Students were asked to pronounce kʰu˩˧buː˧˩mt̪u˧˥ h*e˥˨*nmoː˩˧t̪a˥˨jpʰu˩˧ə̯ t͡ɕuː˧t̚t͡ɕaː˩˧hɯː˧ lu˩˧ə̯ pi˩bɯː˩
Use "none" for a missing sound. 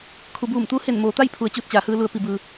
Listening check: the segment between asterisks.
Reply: e˧˩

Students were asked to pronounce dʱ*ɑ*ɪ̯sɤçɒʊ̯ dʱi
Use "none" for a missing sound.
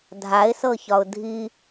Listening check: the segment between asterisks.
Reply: a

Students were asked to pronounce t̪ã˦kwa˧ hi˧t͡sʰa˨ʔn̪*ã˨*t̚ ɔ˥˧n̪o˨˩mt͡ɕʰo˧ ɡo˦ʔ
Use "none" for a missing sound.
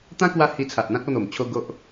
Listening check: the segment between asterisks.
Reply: ã˦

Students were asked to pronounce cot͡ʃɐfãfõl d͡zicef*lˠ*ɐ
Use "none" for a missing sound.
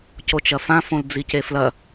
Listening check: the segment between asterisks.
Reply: l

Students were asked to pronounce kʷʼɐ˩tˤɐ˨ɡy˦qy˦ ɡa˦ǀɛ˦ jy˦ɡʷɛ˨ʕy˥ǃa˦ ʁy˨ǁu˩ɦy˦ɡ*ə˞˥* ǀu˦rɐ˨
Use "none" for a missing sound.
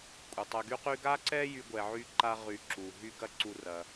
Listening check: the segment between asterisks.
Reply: ɐ˥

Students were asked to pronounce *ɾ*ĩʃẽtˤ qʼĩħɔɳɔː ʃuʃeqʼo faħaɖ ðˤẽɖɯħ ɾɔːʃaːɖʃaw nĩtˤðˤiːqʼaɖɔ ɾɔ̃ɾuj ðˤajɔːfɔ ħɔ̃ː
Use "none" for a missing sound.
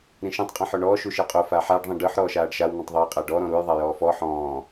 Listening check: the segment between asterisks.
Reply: ɾ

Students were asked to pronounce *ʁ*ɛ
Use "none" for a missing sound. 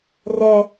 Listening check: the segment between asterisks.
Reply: r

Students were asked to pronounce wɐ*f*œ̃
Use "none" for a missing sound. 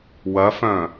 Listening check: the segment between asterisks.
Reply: f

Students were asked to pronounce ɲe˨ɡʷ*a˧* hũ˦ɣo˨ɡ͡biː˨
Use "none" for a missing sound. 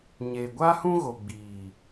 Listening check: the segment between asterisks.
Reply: a˦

